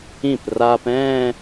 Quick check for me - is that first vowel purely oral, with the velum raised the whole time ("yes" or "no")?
no